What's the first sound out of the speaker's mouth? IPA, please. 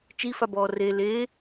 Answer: t͡ʃ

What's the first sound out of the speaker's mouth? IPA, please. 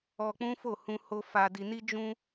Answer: ɔ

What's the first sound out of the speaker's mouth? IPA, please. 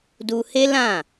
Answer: d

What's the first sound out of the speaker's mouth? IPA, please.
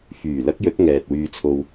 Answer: f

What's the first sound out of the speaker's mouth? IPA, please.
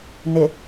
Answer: n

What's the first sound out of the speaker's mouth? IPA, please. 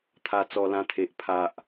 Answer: t̪ʰ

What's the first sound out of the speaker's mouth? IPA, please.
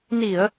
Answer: n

